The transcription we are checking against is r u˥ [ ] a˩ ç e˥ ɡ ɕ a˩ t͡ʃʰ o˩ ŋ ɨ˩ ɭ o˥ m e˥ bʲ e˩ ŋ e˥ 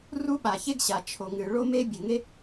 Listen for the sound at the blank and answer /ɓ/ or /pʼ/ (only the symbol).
ɓ